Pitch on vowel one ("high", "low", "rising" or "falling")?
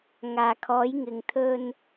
low